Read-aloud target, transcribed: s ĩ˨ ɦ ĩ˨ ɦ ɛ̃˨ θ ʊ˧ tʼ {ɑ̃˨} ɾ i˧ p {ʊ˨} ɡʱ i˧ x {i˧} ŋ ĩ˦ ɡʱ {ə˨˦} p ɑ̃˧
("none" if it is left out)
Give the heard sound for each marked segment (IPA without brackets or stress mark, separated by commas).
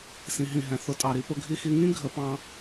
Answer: ɑ˨, ʊ˧, i˧, ə˨˦